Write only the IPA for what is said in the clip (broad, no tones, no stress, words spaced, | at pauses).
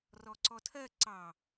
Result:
rɔǀɔtʰɜ ǀɑ